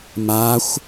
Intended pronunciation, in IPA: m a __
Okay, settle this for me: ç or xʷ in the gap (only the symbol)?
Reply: xʷ